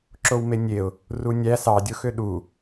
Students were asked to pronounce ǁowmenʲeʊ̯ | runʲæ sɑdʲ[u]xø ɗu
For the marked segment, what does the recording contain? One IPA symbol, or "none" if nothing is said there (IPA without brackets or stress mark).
o